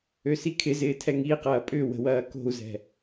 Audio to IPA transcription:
ø s i kʰ ɪ z ɪː tʰ ɛ ŋ i q ɐː pʼ ʏ w ə̤ w ɐː k o̤ u̯ z ɛ̤

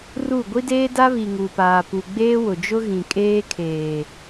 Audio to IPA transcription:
r u˦˨ ɡʷ i˦ d eː˦ d a˦ β i˨ ŋ u˨ p aː˨ p u˨ ɡ͡b eː˦ w ʊ˨ d͡ʒ ʊ˦ ɣ ĩ˨ kʼ eː˦ kʰ eː˨

